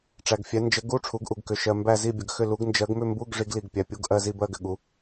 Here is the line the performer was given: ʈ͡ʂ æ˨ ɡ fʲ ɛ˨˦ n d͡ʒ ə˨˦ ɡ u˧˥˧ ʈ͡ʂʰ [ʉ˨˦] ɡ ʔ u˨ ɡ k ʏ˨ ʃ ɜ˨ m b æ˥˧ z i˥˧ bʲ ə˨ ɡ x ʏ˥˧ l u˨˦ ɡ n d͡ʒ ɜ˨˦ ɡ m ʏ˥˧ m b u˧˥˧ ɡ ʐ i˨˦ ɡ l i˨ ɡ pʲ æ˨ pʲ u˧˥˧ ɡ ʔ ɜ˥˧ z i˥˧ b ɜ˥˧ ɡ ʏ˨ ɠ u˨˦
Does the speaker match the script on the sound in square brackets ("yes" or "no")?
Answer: no